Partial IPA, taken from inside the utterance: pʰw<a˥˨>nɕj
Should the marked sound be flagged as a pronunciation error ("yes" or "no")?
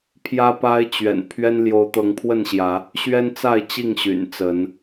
yes